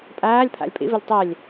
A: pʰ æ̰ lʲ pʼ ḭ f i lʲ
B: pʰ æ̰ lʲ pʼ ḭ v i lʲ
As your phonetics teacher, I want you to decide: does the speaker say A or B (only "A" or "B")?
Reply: B